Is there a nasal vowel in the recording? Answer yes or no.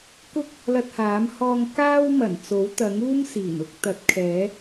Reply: no